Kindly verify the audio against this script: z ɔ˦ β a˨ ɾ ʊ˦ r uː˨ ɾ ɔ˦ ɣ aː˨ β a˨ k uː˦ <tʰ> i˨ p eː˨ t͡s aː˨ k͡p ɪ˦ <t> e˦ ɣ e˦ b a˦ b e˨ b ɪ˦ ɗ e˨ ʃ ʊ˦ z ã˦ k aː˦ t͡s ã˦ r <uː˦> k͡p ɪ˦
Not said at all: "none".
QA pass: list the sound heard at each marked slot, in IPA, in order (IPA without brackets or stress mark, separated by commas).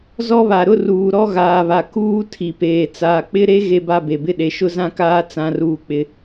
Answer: tʰ, ɾ, uː˦